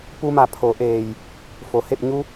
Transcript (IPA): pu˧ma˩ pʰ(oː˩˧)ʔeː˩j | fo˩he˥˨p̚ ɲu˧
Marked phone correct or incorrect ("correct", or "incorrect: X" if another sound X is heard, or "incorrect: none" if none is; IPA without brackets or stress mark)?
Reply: incorrect: o˩˧